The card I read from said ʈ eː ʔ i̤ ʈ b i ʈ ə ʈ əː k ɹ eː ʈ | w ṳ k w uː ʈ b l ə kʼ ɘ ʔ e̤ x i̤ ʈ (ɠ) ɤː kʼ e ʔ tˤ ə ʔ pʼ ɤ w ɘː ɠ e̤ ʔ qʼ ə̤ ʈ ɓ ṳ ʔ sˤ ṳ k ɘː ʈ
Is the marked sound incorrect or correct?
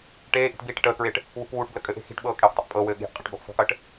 incorrect